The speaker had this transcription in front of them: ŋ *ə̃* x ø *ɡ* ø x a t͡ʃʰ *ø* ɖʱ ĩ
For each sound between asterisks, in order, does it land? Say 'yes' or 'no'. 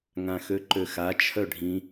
no, no, no

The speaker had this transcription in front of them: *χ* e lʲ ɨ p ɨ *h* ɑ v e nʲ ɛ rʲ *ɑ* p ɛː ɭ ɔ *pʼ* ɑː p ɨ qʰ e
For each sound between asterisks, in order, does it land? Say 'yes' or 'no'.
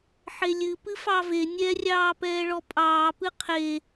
no, no, no, yes

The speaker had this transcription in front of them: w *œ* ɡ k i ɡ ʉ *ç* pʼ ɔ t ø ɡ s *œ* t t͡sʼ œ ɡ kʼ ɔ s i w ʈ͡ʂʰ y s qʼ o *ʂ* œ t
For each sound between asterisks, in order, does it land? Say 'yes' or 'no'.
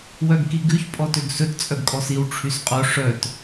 yes, yes, no, yes

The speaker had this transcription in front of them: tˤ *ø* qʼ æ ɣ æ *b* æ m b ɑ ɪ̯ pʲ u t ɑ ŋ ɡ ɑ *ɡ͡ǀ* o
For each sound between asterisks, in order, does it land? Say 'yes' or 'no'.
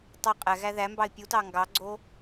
yes, no, yes

